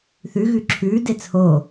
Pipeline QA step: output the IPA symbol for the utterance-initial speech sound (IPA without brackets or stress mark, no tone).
θ